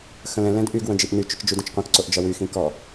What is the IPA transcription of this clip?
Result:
x ə̃ l ɛ̃ l ɛ̃ d ʔ y ɡ w ə̃ d͡ʒ i ʔ n y t͡ʃ ʏ t͡ʃ d͡ʒ y d ə̃ t͡ʃ qʷ ɐ̃ k ǀ o ʔ d͡ʒ ɐ w y x ĩ k ɔ

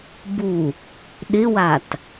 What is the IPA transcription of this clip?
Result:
b u | ɗ ɪ w a t

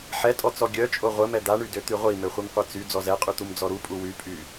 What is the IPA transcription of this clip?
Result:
ħ ɛ tʼ ɔ t͡s ɔ ɡʲ œ t͡ʃʼ o ʁʷ ə m ɛ d̪ a ɳ y d ø t̪ y ʁʷ i m ø χʷ i m qʷ e t͡s y d͡z ɔ z ɛ qʼ y t̪ u m d͡z ɔ ɾ u pʼ u w y pʼ y

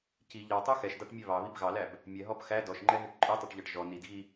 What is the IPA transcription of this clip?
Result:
c i ʎ ɑ tˤ œ x ɛ ʃ d ɑ ʈ mʲ ɛ β ɑ β i b ɣ ɑ l æ b | mʲ ɛ ɦ ɔ b x æ d ɔ ʃ ŋ͡ǃ ɛ ɦ e ʈ ǃʼ œ tˤ œ ʈ ʎ ɑ ʈ ʒ ɔ n i d ɣ i

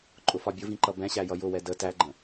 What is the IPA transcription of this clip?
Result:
ǃʼ ʊ f ɒ bʲ ʊ v ĩ ǃ ʌ b ɛ̃ ɕ æ j ʌ j ʊ w ɛ d ə t æ ɡ͡ǃ ə̃

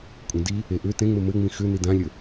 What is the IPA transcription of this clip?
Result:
kʷʼ ẽ d i | e ʔ ʏ t ẽ ŋ͡m ɘ m ɘ ŋ͡m ĩ x ʏ n i d ã lʲ ɘ

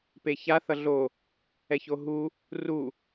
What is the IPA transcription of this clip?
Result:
p e ç a θ ʌ ɮ o | ɛ ç o ɦ u | r u

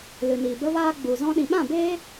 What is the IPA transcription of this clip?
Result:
l ɨ˨ n iː˨ b ə˧ v aː˧ ɡ͡b u˨ z ɔ̃˧ ɗ ĩ˨ ɓ ã˦˨ b eː˦

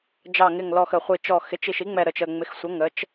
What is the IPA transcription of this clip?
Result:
d͡ʒ ɑ˨˩ ŋ ɪ˨˩ ŋ l ɔ˨˩ x ə˨˩ χʷ i˨˩ t͡ʃ ɔ˨˩ x ɪ˩˥ t͡ʃ i˨˩ ʃ i˩˥ ŋ͡m ɛ˨˩ ɾ ə˨˩ t͡ʃ ə˨˩ ŋ͡m ɪ˩˥ x sʷ ə˩˥ ŋ ə˩˥ t͡ʃ

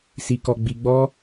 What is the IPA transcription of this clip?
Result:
s i˧ k ɔ˧ ɡ͡b i˧ ɡ͡b ɔ˦

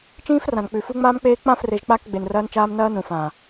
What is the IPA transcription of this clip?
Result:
t͡ʃ ĩː˦ f r ã˨ n k͡p ʉ˨ f u˦ ŋ͡m aː˦ m k͡p eː˦ k͡p ã˦˨ f r e˨ ʒ k͡p a˦˨ k ɡ͡b e˨ n r ɐː˦ n t͡ʃ aː˦ m n ɐː˦ n ũ˨ f ãː˨

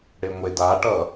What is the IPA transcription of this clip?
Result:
ɽ e ŋʷ e d a ʈ ʌ

